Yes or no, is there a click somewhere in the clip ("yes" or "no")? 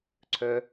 yes